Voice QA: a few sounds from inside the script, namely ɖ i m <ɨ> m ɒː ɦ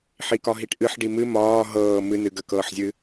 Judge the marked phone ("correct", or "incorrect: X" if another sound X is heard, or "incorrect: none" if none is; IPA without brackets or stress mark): correct